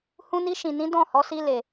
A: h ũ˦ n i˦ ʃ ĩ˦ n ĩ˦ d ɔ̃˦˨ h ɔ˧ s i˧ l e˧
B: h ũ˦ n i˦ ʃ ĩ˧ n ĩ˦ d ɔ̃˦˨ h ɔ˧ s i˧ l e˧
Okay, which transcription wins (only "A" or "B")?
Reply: B